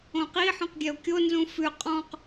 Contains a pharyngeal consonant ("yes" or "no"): yes